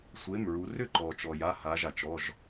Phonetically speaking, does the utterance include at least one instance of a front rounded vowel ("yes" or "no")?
yes